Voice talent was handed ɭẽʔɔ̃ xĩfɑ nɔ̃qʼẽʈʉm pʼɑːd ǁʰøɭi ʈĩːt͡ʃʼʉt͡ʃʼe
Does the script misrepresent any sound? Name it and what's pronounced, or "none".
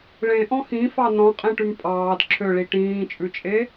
none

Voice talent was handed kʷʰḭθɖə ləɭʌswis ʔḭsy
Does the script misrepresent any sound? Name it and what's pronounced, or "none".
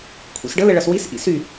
θ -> s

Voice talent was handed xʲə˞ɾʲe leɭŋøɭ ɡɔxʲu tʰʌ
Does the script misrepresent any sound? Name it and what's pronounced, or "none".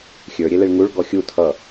ø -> u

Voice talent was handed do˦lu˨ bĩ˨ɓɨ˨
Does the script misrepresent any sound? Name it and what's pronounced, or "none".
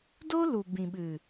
none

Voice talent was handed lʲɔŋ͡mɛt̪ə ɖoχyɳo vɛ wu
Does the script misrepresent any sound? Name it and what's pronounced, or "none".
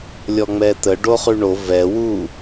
none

